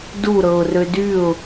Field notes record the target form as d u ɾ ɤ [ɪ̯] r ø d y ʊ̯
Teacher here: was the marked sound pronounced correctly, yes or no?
no